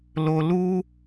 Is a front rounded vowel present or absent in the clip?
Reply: absent